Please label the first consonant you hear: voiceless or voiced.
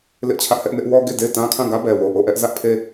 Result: voiced